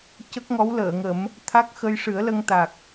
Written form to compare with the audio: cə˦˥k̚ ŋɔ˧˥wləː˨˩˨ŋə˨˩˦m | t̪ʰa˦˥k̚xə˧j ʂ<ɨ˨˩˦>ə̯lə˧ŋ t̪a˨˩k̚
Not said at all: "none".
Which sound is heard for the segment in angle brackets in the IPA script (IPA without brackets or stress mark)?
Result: ɨ˨˩˦